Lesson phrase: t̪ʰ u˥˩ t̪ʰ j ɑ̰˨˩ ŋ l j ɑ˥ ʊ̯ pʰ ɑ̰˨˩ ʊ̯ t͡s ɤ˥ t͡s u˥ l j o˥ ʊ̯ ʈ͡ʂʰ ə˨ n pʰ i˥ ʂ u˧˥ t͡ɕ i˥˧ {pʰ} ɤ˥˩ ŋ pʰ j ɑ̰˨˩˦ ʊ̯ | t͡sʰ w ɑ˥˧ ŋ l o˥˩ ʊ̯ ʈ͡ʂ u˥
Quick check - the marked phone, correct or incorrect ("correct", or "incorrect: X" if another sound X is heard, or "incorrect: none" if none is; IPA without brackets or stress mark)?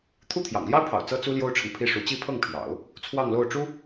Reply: correct